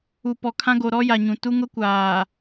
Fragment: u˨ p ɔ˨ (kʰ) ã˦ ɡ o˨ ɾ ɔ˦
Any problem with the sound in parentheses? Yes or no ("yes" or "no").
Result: no